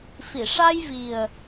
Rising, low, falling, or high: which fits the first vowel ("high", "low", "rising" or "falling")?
low